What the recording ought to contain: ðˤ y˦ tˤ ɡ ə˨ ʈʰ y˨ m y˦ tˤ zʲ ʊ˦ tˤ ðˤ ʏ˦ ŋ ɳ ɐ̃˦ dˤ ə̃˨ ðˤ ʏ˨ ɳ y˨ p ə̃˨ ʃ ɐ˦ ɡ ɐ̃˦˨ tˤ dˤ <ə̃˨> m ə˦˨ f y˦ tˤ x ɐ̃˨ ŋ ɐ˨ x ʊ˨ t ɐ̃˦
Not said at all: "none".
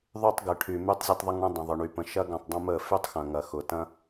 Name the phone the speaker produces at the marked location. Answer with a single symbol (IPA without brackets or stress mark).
ə̃˦